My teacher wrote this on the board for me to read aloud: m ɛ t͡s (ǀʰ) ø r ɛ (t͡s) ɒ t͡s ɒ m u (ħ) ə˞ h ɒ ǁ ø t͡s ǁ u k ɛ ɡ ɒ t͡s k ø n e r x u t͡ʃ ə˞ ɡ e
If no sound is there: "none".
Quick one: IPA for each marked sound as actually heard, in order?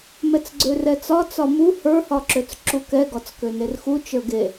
ɡ͡ǀ, t͡s, h

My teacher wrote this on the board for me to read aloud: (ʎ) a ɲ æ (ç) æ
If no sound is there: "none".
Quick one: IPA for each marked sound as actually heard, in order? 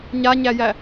ɲ, j

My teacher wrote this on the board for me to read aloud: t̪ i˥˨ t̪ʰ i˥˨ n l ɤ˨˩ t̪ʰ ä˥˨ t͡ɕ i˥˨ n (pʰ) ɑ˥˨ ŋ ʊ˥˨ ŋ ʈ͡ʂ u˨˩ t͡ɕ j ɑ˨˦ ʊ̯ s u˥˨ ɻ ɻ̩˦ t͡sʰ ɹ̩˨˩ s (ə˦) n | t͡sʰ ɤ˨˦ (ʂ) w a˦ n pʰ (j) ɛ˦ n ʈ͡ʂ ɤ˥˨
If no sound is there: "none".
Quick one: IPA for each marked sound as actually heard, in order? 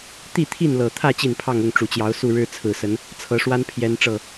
pʰ, ə˨˦, ʂ, j

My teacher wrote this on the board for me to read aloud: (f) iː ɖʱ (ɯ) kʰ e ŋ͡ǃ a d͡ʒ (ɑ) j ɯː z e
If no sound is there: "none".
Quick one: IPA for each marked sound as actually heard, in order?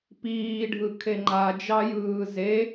p, ɯ, ɑ

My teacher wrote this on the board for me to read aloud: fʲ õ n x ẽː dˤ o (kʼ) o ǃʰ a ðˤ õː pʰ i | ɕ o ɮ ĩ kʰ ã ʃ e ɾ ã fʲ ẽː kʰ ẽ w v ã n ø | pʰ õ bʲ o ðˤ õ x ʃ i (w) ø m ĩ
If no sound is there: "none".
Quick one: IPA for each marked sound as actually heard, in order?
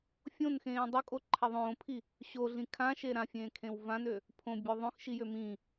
kʼ, j

